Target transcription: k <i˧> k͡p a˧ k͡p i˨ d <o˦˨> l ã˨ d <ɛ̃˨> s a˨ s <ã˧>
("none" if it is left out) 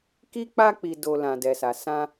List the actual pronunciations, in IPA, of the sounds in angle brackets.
i˧, o˨, ɛ˨, ã˧

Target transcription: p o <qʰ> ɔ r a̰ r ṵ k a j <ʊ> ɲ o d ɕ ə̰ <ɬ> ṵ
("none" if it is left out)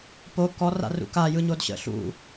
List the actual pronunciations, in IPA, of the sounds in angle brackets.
k, ɯ, ɬ

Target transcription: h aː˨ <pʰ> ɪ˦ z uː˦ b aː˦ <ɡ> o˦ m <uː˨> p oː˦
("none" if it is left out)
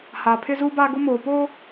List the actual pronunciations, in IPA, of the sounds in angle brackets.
pʰ, ɡ, oː˨

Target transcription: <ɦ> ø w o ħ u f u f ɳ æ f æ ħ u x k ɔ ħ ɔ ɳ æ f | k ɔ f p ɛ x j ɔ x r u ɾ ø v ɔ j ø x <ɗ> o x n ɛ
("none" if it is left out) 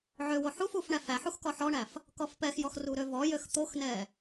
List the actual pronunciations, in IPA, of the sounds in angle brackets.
ʕ, t̪

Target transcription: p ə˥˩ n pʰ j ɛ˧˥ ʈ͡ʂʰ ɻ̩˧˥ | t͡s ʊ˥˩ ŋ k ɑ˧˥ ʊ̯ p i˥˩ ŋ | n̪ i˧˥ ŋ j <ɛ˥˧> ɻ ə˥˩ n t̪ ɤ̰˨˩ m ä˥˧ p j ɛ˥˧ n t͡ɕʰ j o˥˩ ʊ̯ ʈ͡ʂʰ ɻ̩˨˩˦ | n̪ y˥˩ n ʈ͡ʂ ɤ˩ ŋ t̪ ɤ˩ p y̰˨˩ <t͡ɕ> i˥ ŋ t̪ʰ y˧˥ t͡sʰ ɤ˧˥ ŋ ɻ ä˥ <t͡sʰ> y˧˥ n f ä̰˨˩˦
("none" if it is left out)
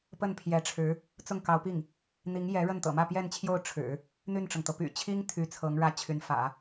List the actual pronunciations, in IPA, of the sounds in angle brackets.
ɛ˧˥, t͡ɕʰ, t͡ɕʰ

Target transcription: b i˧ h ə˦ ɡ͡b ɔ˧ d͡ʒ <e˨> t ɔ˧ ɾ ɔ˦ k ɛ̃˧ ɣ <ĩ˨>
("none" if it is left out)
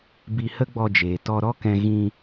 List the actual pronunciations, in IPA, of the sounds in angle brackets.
eː˨, ĩ˧

